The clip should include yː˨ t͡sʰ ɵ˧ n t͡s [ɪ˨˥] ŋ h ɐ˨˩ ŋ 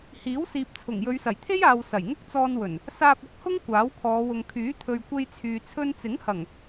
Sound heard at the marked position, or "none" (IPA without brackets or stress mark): ɪ˨˥